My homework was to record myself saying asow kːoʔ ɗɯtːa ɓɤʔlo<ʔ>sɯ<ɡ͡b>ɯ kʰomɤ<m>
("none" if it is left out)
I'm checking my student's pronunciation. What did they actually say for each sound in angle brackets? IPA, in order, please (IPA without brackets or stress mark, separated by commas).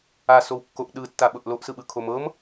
ʔ, ɓ, m